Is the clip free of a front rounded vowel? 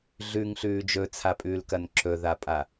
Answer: yes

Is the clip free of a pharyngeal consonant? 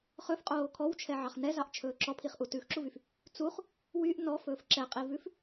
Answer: no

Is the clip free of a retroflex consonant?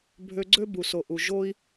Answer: yes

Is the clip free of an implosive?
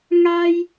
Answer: yes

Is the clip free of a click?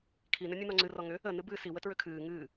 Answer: no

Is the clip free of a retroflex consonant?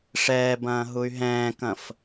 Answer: no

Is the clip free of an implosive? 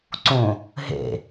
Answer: yes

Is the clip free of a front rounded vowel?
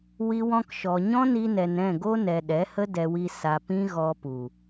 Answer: yes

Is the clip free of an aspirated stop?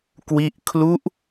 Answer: no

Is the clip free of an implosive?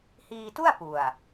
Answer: yes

